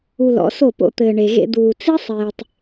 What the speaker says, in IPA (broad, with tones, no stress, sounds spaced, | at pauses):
u˧ l ɔ̰˨˦ s o˦˨ p o̰˧ t̪ ɘː˨ ɳ e˨ ɣ ḛ˧ d̪ uː˨ t͡s i˦ sˤ eː˨ tˤ